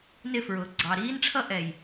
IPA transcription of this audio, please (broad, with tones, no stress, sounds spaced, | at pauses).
n ɪ˦˨ f ɹ ʊː˨ ɡ͡ǀ ɑ˨ ɾ iː˦ n ʈ͡ʂʰ ʌ˦ ʔ ɛ˨ j